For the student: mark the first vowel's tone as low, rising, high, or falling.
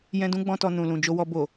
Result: high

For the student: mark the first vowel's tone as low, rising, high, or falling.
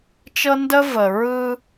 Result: high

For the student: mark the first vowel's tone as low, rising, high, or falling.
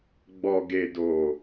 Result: low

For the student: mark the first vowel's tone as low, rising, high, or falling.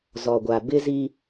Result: low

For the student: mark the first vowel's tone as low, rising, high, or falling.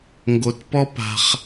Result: low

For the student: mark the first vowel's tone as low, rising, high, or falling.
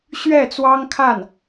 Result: falling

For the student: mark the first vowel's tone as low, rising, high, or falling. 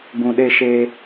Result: low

